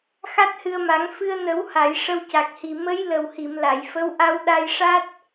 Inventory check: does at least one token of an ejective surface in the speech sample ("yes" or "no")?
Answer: no